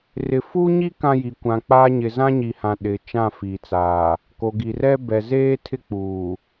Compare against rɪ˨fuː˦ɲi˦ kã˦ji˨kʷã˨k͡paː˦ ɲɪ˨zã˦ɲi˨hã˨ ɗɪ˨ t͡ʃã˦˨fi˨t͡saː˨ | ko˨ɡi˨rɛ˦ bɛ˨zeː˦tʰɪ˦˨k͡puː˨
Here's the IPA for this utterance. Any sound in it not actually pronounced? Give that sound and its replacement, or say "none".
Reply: none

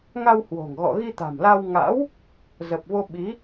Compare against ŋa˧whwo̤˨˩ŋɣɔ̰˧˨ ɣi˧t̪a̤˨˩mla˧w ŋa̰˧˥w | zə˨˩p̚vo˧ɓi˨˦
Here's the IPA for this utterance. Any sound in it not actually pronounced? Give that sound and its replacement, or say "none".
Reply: none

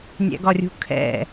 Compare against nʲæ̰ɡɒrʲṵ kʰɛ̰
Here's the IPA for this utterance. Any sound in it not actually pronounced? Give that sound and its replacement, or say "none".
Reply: ṵ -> ṳ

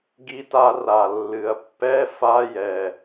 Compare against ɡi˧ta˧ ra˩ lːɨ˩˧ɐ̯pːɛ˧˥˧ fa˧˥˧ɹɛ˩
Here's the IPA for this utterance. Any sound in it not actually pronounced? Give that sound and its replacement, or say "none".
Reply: ɹ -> j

